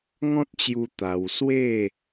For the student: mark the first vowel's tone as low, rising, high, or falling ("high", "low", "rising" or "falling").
high